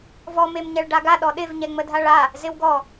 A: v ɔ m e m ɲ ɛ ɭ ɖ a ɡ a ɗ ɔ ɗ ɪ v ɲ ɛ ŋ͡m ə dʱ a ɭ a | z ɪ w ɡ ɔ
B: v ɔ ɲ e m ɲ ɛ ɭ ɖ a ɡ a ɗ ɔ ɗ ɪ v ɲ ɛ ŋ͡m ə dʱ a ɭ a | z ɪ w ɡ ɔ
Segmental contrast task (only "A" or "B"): A